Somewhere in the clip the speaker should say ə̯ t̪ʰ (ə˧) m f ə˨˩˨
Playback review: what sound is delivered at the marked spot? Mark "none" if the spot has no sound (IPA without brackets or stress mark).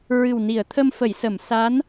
ə˧